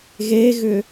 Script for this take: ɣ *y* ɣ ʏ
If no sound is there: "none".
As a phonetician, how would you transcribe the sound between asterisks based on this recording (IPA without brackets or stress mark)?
e